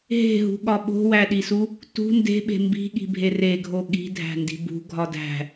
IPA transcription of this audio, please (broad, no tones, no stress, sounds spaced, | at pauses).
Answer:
ɦ e̤ ɦ ṳ ɠ ɒ ɓ o̤ w æ ɗ i s u | t ṳ n d e̤ ɓ e̤ m b i̤ ɠ i̤ bʱ e r e ɡʱ o ɠ i̤ dʱ æ̤ n d i̤ b ṳ ɡʱ ɒ d æ̤